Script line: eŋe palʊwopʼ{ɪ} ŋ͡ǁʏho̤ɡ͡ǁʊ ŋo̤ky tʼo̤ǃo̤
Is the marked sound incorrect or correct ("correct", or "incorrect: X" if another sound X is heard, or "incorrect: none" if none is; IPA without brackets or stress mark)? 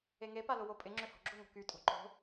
correct